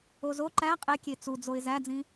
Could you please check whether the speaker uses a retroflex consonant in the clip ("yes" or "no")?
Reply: no